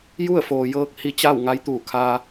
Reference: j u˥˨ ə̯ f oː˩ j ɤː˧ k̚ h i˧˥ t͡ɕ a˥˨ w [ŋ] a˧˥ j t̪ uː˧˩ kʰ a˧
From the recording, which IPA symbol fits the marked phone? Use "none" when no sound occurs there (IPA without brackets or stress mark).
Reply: ŋ